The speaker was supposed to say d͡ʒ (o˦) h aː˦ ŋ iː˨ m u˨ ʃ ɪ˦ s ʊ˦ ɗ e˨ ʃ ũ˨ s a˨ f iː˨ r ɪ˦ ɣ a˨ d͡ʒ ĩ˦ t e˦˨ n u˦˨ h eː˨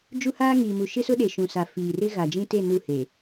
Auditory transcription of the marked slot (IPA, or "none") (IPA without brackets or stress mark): u˦